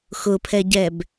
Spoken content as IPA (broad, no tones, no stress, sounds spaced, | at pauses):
x ʊ pʰ ɛ ɟ ɛ b